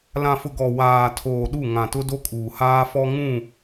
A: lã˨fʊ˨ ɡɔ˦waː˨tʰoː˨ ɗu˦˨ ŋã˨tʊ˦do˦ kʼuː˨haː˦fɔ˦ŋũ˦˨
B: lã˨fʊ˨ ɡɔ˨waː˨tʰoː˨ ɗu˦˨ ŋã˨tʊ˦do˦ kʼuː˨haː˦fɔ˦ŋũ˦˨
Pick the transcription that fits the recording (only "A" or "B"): B